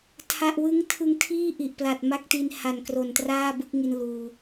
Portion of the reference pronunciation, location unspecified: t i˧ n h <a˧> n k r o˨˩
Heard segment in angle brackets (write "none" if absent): a˨˩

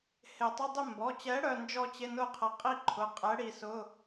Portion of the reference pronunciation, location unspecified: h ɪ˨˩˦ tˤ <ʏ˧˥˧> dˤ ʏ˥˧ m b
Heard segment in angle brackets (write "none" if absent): ʏ˧˥˧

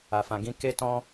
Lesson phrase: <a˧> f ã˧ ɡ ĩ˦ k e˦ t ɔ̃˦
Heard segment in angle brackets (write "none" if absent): a˧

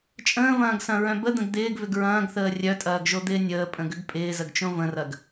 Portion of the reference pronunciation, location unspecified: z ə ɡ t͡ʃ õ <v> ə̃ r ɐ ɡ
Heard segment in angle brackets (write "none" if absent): v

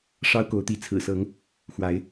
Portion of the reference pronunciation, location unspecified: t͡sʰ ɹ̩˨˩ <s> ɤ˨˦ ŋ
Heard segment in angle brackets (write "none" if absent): s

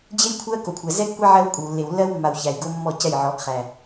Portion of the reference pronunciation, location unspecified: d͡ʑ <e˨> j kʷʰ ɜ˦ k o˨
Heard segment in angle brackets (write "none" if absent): e˦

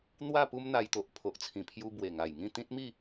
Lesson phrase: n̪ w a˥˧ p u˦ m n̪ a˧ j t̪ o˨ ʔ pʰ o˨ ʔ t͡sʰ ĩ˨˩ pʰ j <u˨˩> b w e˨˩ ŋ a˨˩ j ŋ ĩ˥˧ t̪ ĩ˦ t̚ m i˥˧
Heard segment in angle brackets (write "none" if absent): u˧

